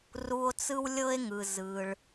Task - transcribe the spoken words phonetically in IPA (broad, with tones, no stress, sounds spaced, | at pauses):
r u˧ o̯ t͡s ɯ˥ w lʲ ɤ˥ e̯ ŋ ɯ˩ z ɯ˩ ɭ